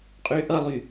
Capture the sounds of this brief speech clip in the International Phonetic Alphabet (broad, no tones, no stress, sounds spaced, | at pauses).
qʼ y ʔ ʌ lˠ y